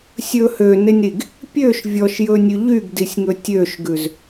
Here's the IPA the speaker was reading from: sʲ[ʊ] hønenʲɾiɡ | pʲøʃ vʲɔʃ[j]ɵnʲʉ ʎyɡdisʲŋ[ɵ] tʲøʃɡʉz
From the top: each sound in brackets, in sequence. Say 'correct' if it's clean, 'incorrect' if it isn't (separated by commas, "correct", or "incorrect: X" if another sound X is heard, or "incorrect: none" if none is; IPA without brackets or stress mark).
incorrect: ɵ, correct, correct